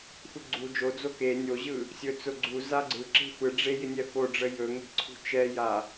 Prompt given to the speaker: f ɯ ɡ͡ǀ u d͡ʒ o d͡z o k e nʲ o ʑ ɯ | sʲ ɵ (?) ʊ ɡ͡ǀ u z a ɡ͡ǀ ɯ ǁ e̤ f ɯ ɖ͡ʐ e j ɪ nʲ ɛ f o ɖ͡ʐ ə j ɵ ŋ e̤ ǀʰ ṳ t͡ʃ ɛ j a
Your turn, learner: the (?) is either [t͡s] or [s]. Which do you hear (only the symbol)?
t͡s